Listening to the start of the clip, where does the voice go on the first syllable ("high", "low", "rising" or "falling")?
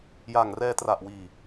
low